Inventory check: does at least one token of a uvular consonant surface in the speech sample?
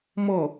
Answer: no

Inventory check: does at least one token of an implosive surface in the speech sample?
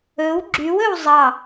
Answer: no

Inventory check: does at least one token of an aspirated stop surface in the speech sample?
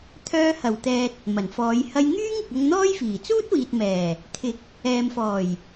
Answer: yes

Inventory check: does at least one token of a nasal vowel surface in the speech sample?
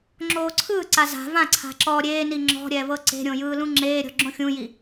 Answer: yes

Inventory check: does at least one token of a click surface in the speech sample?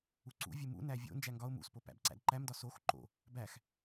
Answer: yes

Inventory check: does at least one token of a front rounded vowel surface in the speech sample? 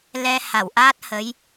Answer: no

